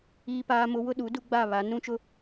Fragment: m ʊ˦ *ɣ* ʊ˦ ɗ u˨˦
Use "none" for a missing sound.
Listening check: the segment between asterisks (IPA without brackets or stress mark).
w